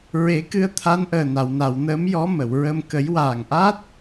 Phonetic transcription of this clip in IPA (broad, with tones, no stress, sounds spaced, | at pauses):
ɹ e˨˩˦ k ɨ˧ ə̯ t̪ʰ a˧˥ n ʔ əː˨˩ n a˨˩˨ w n a˨˩˨ w n əː˧˥ m j ɔ˧˥ m ə˨˩˨ w ɹ ə˧ m k ə˨˩˦ j w aː˨˩ ŋ ʔ a˦˥ t̚